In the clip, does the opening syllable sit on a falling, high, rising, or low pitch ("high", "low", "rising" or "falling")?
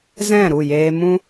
falling